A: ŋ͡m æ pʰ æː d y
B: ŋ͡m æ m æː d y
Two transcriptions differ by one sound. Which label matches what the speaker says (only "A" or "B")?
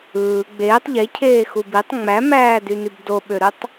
B